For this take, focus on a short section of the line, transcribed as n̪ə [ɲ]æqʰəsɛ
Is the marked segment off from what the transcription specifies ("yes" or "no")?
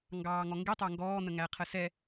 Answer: yes